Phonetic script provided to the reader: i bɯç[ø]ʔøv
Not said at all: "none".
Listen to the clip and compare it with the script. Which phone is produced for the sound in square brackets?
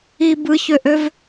ø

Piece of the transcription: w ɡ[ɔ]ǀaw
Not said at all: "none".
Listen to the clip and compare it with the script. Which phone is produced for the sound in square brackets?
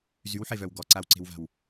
ɔ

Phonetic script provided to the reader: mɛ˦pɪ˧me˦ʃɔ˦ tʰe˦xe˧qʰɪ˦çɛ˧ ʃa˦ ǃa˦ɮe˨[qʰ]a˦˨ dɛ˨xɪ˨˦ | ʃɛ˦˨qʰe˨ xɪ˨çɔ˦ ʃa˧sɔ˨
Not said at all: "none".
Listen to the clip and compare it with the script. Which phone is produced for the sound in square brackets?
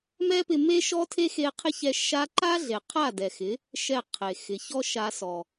qʰ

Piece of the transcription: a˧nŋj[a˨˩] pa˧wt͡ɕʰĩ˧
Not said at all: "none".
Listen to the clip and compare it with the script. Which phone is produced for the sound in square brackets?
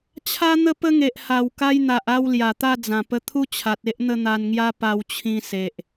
a˦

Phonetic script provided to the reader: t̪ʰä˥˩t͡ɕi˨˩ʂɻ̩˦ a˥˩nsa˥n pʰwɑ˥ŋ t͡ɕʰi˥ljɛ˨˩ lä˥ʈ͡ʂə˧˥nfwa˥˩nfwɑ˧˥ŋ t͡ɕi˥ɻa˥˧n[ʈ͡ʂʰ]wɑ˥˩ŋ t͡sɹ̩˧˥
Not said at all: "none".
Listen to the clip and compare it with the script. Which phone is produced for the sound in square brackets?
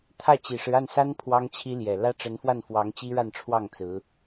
ʈ͡ʂʰ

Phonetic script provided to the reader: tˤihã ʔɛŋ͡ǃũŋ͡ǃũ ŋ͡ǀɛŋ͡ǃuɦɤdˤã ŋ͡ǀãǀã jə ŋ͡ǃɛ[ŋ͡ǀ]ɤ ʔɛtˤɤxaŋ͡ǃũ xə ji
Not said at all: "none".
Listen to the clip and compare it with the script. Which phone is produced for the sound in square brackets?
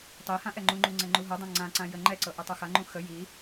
ǀ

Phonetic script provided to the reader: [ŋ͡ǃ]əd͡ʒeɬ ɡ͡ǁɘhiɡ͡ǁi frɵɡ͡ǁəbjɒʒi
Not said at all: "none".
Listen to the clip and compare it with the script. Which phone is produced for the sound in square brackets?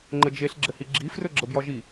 ŋ͡ǃ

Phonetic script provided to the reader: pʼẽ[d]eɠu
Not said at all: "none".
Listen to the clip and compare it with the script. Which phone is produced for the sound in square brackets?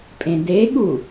d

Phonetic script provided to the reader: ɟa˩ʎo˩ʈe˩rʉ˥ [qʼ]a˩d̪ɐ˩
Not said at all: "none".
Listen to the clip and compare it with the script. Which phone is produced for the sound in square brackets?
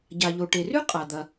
qʼ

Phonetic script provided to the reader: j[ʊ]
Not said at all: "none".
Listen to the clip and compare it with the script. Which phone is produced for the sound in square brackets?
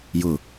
ʊ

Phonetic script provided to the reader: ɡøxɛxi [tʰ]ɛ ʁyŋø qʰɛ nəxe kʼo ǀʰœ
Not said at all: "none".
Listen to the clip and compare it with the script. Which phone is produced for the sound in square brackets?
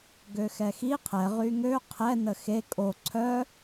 qʰ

